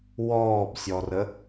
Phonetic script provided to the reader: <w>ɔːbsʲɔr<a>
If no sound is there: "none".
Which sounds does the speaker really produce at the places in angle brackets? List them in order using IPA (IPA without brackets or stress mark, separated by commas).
w, ə